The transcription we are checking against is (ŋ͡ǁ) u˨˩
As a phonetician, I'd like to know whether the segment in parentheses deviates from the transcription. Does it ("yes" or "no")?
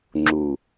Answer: no